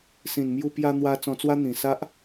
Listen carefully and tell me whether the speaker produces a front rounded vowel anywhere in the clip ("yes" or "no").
no